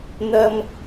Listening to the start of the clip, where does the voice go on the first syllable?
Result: high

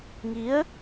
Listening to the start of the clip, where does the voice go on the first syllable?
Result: rising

